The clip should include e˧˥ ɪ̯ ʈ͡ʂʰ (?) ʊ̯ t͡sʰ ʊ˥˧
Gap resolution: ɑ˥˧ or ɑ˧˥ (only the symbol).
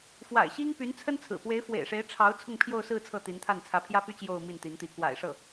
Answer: ɑ˧˥